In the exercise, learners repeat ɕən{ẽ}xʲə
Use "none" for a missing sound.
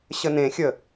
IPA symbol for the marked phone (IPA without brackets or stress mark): ẽ